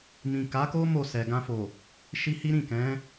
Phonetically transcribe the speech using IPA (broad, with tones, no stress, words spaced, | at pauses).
mĩ˨ ka˨˦ko˦ mo˦˨sɛ˨ɡã˧fo˨ | ʃi˧hi˦ɾĩ˦˨kɛ̃˨˦